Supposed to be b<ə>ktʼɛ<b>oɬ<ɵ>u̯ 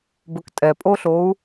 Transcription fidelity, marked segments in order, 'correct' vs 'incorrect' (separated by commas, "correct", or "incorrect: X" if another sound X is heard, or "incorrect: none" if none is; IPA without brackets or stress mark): incorrect: ɵ, incorrect: pʼ, incorrect: o